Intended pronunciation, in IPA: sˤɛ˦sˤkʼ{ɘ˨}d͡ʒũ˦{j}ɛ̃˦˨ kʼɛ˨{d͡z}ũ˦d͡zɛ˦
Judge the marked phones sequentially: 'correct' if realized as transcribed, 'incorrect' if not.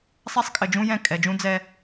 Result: correct, correct, incorrect: d͡ʒ

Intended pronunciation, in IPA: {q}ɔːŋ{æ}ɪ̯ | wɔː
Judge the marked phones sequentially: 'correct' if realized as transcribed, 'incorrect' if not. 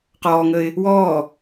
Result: correct, incorrect: ə

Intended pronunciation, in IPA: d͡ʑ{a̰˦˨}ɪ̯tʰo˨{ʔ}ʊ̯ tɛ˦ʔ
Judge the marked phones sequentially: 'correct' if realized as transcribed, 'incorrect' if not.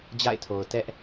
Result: correct, incorrect: none

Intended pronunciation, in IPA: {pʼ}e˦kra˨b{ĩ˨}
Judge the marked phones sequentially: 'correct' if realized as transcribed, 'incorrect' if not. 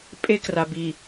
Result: correct, incorrect: i˨

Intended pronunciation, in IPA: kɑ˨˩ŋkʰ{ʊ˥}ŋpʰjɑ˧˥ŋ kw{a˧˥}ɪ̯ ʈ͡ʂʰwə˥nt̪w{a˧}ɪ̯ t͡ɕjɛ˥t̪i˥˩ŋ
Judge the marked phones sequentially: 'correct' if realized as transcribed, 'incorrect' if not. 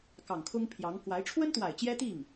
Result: correct, correct, incorrect: a˨˩

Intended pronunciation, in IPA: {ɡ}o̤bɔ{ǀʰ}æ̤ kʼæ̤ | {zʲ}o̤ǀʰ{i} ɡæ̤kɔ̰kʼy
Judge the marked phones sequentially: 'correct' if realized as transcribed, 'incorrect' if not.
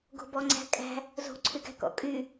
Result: correct, incorrect: ŋ͡ǀ, incorrect: z, incorrect: y

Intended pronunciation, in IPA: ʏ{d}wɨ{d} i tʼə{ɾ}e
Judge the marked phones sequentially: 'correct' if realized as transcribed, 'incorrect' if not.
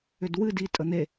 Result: correct, correct, incorrect: n̪

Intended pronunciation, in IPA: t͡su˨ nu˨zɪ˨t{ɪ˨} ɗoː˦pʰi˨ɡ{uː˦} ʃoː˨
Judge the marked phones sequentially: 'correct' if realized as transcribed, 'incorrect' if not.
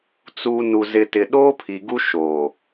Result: correct, incorrect: u˦

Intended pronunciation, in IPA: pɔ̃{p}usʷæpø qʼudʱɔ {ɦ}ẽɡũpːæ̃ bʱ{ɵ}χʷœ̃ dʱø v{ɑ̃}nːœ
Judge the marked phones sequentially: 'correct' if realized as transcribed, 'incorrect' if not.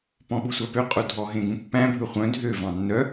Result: incorrect: ɓ, correct, correct, correct

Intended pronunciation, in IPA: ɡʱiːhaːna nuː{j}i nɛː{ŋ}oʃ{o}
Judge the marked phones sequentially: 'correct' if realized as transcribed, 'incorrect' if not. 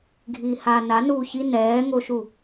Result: incorrect: ç, correct, incorrect: u

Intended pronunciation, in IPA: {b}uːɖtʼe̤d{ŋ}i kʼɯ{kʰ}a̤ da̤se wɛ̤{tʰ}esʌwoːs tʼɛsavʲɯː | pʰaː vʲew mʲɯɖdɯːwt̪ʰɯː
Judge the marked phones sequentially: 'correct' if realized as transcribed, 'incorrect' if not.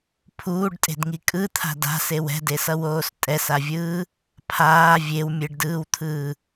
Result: incorrect: pʰ, correct, incorrect: t̪ʰ, incorrect: d

